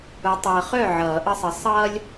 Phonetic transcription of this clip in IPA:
ʊ˨˦ tˤ ʌː˨ χ œ˥˨ ʕ ʌː˨˩˦ ʔ ʌ˦ sˤ ə˨˦ sˤ ʌː˦ lʲ

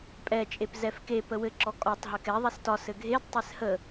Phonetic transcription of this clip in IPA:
pʼ ɛ t͡ʃʼ e p z ɛ f k e p ə w ɘ ǁ ɔ kʼ ɒ tˤ ɦ ɘ k ɛ ðˤ ɛ s t ɒ s ɘ ɡʱ e d tˤ ɛ s h ə

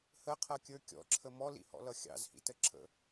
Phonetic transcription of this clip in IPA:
h ə qʰ ʌ kʲ ə˞ kʲ ɔ̰ ǁʰ ə m ɔ l ḭ h ɔ̰ l ʌ xʲ ɑ̰ z h ḭ t ə ǁʰ ə̰

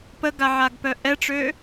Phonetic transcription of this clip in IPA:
p ə ɡ a ʕ a ɡ p œ ʔ ɛ ʈ͡ʂ ø

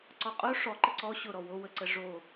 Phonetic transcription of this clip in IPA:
ǀ ɔ qʼ o ʂ ɔ ǃ ə ǀ ɔ ɕ ʊ ɾ ɔ w o w ə ǀ ə ʐ o

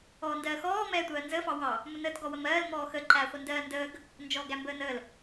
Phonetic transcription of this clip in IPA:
ɔː n d ɜː x ɔː m ɛː tʷ ɜː n z əː f ɑ w ɑ | m ʊ n əː t ɡ ɔ w ə m ɜː l m ɔː x ə ǃ æ χʷ ə n d ɜː n d əː ɡ | n d͡ʒ ɔː ɡ æ m b əː n əː l

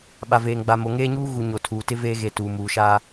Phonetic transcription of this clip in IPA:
ɓ a˨ v eː˨ ŋ ɡ͡b a˨ m o˨ ŋ eː˦ ɲ uː˦ ɣ u˨ ɲ o˨ tʰ uː˨ t ɪ˦ v eː˦ ɣ e˨ t uː˨ m uː˨ ʃ aː˦

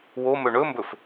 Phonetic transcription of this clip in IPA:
w o m ɵ ɳ ɵ m b ɵ f

